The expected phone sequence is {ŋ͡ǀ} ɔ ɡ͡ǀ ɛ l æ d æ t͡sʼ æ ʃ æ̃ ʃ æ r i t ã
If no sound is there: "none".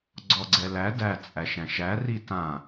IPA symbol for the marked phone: ɡ͡ǀ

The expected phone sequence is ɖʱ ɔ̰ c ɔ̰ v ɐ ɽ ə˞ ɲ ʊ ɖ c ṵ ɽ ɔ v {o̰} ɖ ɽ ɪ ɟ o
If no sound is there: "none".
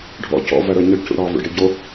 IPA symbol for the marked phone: o̰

